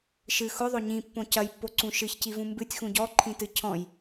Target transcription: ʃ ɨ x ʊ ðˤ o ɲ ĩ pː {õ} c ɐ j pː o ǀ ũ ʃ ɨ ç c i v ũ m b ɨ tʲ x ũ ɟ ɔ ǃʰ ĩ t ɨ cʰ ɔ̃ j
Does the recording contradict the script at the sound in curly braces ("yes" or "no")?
no